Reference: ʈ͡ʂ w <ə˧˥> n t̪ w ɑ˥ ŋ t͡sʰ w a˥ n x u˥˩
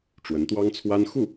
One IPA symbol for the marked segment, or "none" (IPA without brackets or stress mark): ə˧˥